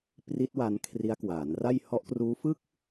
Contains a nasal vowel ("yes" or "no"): no